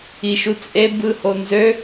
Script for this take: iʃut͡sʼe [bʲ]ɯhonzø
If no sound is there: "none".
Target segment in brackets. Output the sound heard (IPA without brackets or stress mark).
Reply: b